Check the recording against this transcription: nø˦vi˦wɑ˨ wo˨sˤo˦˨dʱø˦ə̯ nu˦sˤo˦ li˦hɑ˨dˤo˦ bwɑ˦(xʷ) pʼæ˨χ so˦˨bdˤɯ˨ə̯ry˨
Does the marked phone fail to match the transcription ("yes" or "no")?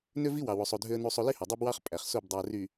yes